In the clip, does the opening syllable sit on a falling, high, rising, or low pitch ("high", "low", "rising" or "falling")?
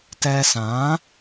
high